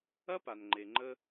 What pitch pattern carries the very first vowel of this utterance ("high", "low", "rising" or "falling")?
high